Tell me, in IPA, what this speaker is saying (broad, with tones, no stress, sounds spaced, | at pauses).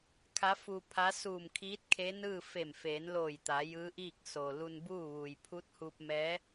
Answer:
kʰ a˧˥ f u˧ pʰ a˧˥ s uː˧˩ m kʰ iː˧˥ t̚ kʰ e˧˥ n ɯː˥˨ f e˧˩ m f eː˩˧ n l oː˧˩ j t̪ a˩˧ j ɯː˧˥ ʔ iː˥˨ k̚ s o˩ l u˧ n b uː˥˨ ʋ uː˩ j pʰ u˧˥ t̚ h uː˧ p̚ m ɛː˧˥